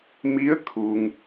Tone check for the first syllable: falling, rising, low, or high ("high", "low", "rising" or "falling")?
rising